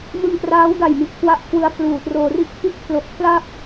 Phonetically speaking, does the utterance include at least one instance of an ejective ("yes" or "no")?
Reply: no